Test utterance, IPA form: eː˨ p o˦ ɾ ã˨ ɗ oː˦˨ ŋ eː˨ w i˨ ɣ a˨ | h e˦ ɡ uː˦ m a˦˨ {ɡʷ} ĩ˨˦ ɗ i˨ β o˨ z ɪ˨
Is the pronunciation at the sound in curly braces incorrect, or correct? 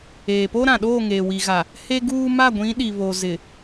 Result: correct